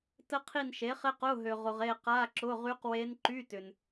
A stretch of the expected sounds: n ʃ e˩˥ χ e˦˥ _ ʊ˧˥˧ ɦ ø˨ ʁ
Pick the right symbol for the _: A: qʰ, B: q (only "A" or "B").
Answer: B